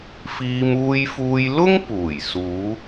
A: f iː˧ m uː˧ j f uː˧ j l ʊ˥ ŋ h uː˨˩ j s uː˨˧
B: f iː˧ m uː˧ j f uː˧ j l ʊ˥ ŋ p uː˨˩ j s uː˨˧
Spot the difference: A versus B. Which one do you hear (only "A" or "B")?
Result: B